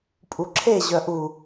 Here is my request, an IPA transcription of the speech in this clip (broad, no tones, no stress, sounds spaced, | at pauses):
pʼ u ǁʰ e ʑ œ ʔ u